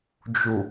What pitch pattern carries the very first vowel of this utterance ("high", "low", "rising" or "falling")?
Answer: low